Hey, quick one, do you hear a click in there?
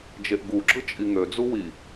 yes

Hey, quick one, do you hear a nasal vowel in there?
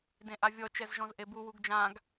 yes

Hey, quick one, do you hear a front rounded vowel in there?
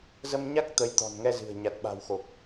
no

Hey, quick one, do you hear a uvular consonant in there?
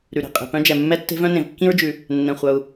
yes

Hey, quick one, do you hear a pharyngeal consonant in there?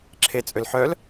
yes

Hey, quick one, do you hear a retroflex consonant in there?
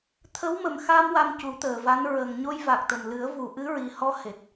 no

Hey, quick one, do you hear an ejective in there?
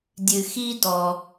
no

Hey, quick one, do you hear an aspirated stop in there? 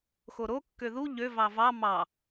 no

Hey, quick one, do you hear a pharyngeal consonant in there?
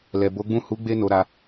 no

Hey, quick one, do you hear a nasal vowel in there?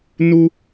no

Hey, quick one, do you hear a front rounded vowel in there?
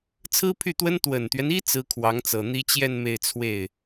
yes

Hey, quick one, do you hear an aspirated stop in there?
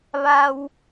no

